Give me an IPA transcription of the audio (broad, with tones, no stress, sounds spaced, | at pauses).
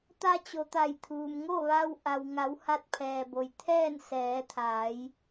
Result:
t̪ a˧ t͡ɕ o˩ t̪ a˧˩ j t̪ʰ uː˩ m ŋ o˥˨ ʋ a˧ w ʔ a˩ w ŋ a˩˧ w h a˧ t̚ pʰ ɛː˩ b o˩ j t̪ʰ ɛː˥˨ n s ɛː˩˧ t̪ʰ aː˩˧ j